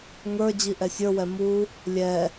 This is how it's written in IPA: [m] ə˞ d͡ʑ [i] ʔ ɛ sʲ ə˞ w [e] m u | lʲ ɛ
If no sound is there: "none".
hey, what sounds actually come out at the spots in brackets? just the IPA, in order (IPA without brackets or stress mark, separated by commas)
ŋ, i, ɛ